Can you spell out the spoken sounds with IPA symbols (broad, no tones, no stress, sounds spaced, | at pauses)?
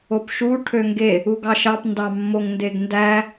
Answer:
o p ʃ u ʈʰ ø ŋ ɡ e | u ɡ ɑ ʃ ɑ p n d ɑ mː o ŋ n d e ɡ n d æ